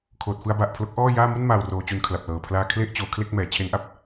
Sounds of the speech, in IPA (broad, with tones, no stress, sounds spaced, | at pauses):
kʰ oː˨˩ t̚ f ɯ˧ a̯ b a˨˩ ʔ pʰ l o˦˥ k̚ ʔ ɔː˥˩ j aː˥˩ m u˥˩ n m aː˨˩ w r oː˧ t͡ɕ u˧ n kʰ l a˨˩ p̚ l ɤː˨˩ pʰ l aː˧ kʰ l e˥˩ ʔ t͡ɕ oː˩˦ kʰ l e˥˩ k̚ m ɛː˩˦ t͡ɕʰ e˦˥ n ʔ a˦˥ p̚